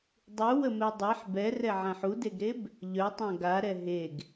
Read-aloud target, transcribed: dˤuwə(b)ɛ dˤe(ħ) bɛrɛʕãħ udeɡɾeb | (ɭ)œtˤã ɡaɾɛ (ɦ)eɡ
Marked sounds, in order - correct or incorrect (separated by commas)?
incorrect, correct, incorrect, correct